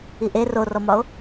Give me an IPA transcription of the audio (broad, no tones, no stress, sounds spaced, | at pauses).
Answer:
i ʔ e r o r ɔ m ɒ o̯